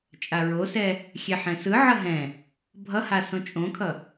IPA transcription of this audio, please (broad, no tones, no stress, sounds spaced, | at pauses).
t͡ʃʼ a ɹ o s ɛ | xʲ ɛ ħ ɛ̃ s ɯ ʕ ʌ ɦ ɛ̃ | bʱ ʌ h a s õ t͡ʃʼ õ kʰ ʌ